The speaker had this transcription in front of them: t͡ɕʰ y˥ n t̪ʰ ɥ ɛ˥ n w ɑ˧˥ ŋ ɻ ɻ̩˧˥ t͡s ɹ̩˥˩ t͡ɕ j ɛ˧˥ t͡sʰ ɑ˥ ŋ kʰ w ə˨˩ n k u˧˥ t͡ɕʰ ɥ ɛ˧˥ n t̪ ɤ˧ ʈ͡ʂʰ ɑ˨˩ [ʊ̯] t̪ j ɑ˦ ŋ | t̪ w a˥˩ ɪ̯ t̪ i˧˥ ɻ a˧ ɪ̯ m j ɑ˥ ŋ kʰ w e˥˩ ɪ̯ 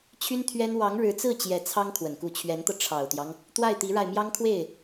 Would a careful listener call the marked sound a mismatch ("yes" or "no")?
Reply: no